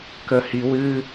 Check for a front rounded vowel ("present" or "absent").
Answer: absent